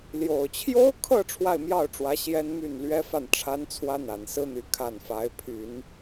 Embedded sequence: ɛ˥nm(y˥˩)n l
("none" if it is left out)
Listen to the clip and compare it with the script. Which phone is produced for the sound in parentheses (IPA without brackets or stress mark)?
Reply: y˥˩